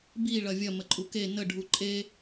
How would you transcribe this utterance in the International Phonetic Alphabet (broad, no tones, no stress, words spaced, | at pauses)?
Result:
bi ɭɐvʲɐ məǃʼuke nə ɖʱuǃʼe